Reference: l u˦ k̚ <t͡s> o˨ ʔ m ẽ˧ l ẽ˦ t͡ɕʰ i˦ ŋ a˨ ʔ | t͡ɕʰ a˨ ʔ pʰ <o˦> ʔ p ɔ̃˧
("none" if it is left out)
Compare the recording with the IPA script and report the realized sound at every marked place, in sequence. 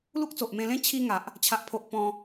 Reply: t͡s, o˨

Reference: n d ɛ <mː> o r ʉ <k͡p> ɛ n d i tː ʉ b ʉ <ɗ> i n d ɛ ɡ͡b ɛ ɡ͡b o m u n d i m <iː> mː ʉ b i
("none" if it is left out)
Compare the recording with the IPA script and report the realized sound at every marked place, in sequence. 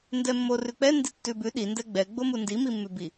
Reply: mː, k͡p, ɗ, i

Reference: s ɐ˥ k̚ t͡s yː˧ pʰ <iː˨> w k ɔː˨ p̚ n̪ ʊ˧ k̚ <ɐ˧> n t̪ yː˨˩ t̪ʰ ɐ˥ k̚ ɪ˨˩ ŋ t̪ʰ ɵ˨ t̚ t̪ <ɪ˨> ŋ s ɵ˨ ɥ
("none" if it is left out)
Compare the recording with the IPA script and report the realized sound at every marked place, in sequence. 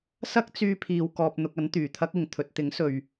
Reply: iː˨, ɐ˨˥, ɪ˨˥

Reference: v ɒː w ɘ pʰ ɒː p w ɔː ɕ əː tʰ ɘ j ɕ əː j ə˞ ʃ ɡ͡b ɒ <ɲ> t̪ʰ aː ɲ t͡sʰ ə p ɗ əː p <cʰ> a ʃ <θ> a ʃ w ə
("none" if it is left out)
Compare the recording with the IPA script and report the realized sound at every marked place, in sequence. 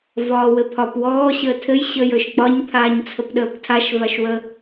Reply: ɲ, tʰ, v

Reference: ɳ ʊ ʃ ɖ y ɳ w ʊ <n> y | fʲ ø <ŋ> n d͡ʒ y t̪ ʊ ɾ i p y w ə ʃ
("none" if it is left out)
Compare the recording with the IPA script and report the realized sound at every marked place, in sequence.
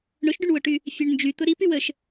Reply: ʈ, ɳ

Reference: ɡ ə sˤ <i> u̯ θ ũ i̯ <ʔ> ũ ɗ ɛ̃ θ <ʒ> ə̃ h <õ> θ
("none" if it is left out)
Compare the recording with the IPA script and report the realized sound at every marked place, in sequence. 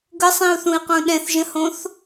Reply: ĩ, q, ʒ, õ

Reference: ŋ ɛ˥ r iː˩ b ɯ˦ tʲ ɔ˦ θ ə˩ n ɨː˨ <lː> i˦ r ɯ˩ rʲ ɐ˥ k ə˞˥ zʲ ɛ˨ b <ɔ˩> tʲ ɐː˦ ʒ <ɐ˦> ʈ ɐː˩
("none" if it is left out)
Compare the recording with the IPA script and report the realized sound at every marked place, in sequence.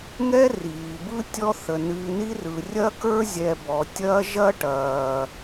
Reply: n, ɔ˩, ɐ˦

